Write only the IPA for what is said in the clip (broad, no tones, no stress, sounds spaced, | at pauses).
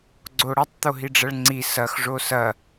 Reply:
ɡ͡ǀ o ɽ ɐ tˤ t̪ o ɦ i ɖ͡ʐ ɐ ɭ ŋ͡ǀ i s ɐ x ʐ o s ɐ